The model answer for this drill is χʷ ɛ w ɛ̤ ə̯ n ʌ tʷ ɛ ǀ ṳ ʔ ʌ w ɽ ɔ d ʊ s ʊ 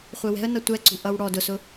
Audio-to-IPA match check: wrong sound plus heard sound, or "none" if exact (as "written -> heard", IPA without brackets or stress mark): none